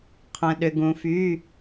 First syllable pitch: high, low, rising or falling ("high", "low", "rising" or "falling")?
low